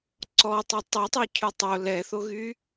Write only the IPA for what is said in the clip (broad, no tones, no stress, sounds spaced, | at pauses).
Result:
ǀ ɔ tˤ o tˤ e tˤ y cʰ y tˤ o l ɛ θ o ɣ y